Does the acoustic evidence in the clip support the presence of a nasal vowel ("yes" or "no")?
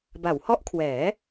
no